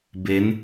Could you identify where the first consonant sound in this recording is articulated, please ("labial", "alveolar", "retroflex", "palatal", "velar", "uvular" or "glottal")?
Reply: labial